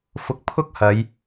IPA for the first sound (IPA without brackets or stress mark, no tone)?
f